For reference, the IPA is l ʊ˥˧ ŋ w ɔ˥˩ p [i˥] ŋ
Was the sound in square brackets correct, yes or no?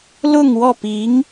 no